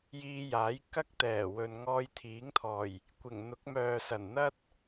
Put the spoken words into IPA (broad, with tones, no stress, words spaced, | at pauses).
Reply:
jiː˧jaː˨˥jkɐ˥k̚ t̪ɛː˨˩wɵ˨n ŋɔː˧jt̪ʰiː˨˥ŋt̪ʰɔː˨˩j | kʷɪ˨˩ŋn̪ʊ˨˥k̚ mœː˨ sɐ˨˩nn̪ɐ˥t̚